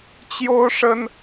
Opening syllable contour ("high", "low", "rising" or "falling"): high